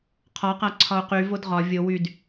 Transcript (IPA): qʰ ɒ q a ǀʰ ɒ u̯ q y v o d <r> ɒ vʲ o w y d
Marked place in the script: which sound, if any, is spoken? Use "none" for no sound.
ʁ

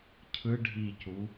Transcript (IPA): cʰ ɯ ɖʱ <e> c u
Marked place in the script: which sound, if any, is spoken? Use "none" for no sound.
i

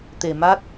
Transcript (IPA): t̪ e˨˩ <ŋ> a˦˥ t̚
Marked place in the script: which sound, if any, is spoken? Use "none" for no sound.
m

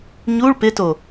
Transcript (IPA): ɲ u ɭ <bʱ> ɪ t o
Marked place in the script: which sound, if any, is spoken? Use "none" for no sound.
p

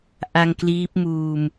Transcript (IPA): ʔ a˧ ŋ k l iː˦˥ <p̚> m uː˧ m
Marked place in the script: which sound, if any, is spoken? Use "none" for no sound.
p̚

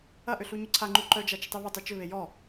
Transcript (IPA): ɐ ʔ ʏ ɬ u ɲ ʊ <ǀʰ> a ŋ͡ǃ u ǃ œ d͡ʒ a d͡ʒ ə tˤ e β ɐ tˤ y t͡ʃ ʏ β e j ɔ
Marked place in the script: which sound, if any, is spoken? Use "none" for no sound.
ǀʰ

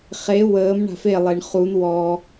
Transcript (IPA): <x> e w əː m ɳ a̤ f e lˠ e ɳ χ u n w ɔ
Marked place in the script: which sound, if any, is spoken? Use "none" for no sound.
χ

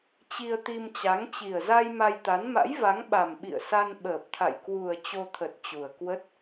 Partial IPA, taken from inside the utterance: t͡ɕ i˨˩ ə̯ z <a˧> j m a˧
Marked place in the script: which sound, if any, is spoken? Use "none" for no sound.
a˧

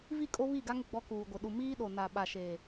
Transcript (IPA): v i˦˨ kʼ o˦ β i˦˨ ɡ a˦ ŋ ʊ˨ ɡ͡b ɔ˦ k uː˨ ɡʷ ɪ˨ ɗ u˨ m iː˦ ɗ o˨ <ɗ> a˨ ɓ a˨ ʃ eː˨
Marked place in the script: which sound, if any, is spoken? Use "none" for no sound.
n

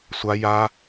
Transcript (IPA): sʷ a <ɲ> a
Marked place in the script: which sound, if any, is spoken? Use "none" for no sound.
j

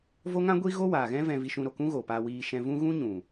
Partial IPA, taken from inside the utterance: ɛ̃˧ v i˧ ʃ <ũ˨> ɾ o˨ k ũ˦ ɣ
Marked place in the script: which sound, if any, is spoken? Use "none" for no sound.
ũ˧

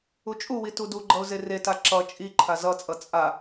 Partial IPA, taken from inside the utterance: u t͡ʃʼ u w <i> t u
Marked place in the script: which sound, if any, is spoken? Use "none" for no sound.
i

